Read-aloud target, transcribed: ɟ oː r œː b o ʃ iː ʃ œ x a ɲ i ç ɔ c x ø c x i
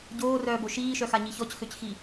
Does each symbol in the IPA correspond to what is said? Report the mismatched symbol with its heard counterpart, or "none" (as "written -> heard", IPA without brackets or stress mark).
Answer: none